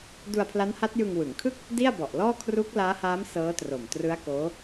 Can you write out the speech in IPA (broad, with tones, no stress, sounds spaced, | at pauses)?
d u˧ a̯ pʰ l a˦˥ n h a˦˥ t̚ j ɯ˧ ŋ w ɯ˩˦ ŋ kʰ ɯ˥˩ k̚ | d i˥˩ a̯ b ɔ˨˩ ʔ l ɔː˥˩ kʰ r u˦˥ k̚ l aː˦˥ h aː˦˥ m s ɤː˦˥ t r o˨˩ m t r ɯ˦˥ a̯ k oː˦˥